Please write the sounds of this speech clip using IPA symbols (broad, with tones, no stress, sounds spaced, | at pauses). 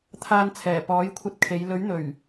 t̪ʰ aː˨ n t͡sʰ ɛː˨˩ p ɔː˨˥ j kʷʰ ɐ˧ t̚ kʰ e˨˧ j l ɵ˨˥ ɥ n̪ ɵ˨˩ ɥ